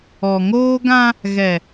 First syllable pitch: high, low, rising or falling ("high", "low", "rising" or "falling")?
low